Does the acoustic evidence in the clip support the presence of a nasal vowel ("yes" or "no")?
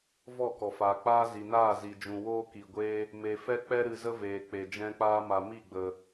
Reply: yes